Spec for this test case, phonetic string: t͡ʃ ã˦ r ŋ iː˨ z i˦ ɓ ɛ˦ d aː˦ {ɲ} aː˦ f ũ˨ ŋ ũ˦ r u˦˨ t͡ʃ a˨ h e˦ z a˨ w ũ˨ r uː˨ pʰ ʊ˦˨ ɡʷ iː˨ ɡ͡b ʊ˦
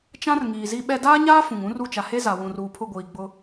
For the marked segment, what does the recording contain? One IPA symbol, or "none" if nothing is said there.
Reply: ɲ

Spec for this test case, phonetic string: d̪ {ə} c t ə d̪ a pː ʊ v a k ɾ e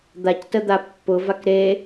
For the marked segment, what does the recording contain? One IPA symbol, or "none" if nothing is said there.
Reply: a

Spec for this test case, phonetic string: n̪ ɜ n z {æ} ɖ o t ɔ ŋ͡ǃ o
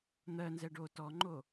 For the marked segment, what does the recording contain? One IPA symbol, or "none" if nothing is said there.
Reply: ɛ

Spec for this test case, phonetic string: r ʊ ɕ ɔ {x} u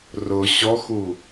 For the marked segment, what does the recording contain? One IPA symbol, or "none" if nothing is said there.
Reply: x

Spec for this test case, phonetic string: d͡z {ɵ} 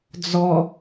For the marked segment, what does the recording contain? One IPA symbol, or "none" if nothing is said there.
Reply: ɔ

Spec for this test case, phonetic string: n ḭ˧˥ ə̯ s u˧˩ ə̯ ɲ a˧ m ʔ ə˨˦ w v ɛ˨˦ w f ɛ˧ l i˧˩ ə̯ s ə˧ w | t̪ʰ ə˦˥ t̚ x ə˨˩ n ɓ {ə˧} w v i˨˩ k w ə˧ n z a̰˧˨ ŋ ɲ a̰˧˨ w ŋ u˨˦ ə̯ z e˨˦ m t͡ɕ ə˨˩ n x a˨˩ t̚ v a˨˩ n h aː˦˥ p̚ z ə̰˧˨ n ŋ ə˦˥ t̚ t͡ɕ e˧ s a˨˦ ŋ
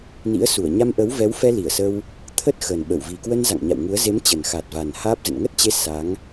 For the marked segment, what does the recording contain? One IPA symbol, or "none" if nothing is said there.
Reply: ə˧˩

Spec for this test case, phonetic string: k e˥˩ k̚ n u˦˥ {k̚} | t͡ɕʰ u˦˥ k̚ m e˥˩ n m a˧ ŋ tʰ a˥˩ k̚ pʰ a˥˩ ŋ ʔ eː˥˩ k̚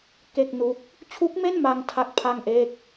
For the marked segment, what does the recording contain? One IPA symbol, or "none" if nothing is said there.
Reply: k̚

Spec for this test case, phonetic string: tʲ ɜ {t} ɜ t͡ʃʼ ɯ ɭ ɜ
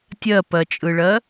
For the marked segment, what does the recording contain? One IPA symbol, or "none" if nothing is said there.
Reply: p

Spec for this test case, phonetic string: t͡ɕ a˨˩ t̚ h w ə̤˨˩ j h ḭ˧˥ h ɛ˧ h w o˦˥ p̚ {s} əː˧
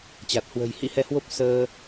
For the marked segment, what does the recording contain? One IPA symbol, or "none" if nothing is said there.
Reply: s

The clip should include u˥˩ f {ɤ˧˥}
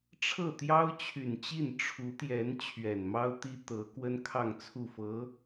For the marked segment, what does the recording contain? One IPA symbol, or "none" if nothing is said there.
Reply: ɤ˧˥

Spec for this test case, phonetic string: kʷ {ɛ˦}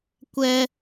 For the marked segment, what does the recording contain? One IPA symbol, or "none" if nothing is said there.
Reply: ɛ˦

